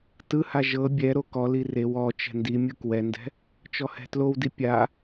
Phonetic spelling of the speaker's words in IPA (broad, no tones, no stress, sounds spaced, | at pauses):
t ɯ h a ʒ ɤ bʲ ɛ ɾ o k ɔ l i r e w ɔ t͡ʃ ɛ̤ n d i mʲ ɯ k w ɛ n d ɛ̤ | t͡ʃ ɔ h ɛ̤ t l o w d i pʲ a